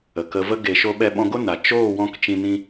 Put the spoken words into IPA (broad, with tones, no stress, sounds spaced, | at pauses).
ə˨ k ə˧ v ə˦ ɡ e˨ ʃ o˧ ɓ ɛ˧ ɓ ɔ̃˧ ɡ o˦ n a˨ t͡ʃ oː˦˨ w ɔ̃˧ k t͡ʃ ĩ˧ n ĩ˧